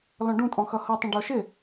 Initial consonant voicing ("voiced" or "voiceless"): voiced